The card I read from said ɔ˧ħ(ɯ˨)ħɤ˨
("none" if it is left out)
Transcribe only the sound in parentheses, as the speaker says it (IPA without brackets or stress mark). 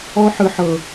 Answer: ɯ˨